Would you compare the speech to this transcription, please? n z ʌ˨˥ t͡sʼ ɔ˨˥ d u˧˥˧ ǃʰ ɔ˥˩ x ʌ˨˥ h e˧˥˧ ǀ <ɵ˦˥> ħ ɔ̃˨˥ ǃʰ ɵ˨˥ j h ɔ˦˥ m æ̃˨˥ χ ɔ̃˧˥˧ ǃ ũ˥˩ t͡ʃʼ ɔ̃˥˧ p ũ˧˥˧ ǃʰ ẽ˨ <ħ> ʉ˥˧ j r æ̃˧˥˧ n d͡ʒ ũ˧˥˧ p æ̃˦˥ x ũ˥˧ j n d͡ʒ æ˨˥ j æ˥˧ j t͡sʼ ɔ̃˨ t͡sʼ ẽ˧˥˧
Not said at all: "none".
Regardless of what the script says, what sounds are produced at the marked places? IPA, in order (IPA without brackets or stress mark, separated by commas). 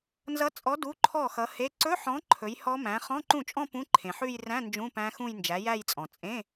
ɵ˧˥˧, ħ